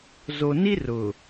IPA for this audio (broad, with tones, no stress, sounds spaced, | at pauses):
z o˨ n i˦ r ʊ˨